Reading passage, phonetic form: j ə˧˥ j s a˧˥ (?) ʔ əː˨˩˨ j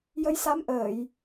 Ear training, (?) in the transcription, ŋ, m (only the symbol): m